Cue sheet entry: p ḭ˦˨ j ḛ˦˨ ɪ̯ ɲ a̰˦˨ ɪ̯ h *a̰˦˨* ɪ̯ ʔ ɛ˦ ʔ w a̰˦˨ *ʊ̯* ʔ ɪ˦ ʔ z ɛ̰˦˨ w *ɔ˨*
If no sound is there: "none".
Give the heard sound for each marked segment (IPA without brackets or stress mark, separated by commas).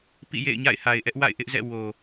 a˨, ɪ̯, o˨